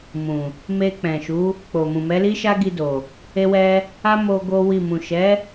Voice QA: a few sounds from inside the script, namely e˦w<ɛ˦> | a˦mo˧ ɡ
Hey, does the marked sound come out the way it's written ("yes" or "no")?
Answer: yes